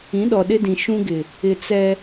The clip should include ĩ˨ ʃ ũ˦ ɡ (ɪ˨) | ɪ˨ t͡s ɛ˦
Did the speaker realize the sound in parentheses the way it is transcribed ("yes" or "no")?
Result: yes